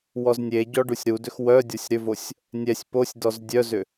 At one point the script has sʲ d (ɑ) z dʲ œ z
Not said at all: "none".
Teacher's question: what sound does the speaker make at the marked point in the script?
ɔ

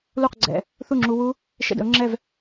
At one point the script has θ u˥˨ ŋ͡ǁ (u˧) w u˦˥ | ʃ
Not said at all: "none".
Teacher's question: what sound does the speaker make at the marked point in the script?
u˧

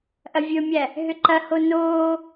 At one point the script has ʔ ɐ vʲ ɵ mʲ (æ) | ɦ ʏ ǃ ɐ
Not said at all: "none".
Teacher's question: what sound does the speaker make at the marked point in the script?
æ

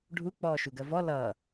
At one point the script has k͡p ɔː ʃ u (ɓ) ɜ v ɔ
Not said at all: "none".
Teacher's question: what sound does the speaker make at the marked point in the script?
ɡ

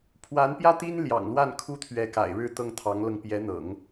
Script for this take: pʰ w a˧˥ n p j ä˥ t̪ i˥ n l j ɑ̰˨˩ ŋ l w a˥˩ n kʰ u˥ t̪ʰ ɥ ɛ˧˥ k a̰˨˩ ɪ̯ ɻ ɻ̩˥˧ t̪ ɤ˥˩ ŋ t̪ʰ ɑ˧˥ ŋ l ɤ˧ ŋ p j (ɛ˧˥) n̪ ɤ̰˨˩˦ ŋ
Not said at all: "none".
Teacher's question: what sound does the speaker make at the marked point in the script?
ɛ˧˥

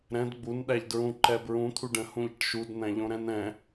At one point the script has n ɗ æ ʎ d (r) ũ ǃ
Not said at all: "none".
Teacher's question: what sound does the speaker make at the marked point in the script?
ɹ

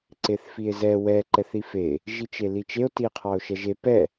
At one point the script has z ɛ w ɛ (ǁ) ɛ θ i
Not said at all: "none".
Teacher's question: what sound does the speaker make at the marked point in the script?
ǃ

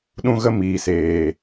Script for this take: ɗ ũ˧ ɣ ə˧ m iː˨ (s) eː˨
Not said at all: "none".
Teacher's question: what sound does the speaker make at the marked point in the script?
s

